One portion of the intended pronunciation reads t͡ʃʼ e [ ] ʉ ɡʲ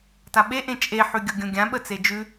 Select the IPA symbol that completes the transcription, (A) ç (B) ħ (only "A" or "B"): B